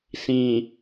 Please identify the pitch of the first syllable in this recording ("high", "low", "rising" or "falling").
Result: low